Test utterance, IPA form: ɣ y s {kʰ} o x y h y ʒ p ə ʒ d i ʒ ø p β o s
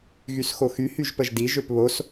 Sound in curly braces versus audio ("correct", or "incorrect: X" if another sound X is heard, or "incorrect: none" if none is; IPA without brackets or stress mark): incorrect: x